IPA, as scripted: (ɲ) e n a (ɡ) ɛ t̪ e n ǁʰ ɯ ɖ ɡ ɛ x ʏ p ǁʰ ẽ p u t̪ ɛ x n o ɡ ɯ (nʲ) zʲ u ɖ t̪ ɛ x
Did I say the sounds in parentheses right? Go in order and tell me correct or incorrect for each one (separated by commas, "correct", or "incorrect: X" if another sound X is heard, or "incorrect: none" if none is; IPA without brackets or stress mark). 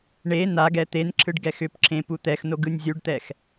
incorrect: ɳ, correct, correct